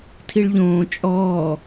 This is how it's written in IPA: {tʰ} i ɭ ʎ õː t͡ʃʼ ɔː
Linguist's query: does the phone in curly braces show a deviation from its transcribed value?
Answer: no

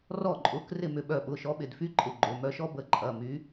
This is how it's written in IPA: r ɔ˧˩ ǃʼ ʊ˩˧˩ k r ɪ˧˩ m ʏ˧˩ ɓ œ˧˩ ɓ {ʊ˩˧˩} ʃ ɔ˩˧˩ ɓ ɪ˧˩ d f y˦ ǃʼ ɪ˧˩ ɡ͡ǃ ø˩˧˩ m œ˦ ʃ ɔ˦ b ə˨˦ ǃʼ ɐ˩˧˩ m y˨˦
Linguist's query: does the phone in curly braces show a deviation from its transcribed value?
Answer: no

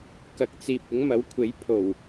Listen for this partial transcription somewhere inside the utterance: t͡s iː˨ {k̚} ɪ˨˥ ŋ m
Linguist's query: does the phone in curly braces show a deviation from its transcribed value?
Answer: yes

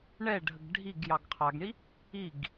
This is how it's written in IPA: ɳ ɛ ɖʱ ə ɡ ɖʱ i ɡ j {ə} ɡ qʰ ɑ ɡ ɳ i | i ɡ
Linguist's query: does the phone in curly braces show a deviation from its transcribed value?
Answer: yes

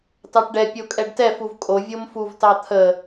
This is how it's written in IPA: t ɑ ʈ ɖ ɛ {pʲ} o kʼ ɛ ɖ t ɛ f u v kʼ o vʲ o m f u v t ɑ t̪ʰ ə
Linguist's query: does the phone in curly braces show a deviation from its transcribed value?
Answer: no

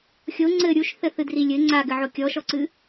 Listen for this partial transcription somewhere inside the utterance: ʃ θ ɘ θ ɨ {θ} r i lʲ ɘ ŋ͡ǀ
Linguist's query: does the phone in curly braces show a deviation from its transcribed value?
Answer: yes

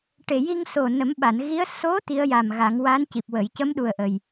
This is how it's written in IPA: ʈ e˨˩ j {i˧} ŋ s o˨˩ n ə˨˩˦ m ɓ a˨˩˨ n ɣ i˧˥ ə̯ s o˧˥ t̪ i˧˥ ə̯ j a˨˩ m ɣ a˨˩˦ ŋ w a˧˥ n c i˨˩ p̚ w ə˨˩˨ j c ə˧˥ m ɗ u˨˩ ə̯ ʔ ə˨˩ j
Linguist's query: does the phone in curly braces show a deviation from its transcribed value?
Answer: no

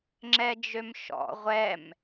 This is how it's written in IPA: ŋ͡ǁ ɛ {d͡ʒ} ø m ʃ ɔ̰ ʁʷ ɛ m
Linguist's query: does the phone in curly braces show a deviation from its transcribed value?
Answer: no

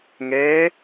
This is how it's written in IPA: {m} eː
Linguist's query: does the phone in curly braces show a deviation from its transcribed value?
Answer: yes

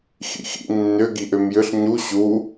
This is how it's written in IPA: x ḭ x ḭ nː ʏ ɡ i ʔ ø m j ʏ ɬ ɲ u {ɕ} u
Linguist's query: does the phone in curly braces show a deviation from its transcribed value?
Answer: no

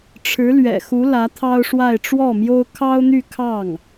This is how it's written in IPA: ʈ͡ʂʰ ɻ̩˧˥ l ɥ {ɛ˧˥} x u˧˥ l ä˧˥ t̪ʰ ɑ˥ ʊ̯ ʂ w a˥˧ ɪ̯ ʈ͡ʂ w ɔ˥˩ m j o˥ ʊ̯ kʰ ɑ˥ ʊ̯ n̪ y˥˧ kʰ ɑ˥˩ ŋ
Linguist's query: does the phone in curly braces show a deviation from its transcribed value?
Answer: yes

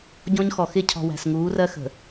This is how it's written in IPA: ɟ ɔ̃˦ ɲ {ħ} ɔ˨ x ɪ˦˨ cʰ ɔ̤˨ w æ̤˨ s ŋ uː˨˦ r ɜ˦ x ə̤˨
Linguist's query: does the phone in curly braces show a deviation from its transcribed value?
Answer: yes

